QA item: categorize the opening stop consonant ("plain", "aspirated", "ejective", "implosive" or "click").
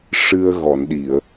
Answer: implosive